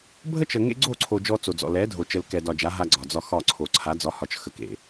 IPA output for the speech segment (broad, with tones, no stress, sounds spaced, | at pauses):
bʱ ə˦ t͡ʃ ə˨ ŋ ḛ˦ ɡ͡ǀ o˦˨ ǀʰ o˨ d͡ʒ ɔ˦ t͡s o˨ d͡z ɔ̰˨ l ɛ˨˦ dʱ o˨ t͡ʃ ə˨ l k ɛ˨ d ɒ˨ d͡ʒ a˨˦ ɦ a˦ ɡ͡ǀ ɒ˨ d͡z ɒ˦ x ɒ˦˨ ǀʰ o˨ ǀʰ a˨˦ d͡z ɒ˨˦ h ɒ˨ t͡ʃ x ə˨ k ḛ˨